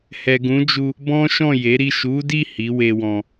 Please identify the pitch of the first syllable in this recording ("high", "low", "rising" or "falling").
low